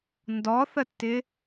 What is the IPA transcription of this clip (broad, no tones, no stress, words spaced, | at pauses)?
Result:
ndɔθətːɪ